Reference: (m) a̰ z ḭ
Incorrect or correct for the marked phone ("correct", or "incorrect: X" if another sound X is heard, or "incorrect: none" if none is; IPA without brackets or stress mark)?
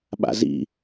incorrect: ɓ